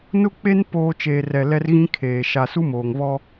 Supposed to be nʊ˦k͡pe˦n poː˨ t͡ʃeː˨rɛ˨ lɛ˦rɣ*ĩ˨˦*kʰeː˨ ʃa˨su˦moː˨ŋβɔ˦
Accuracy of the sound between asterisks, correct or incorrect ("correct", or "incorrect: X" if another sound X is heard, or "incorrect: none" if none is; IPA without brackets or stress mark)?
incorrect: ĩ˦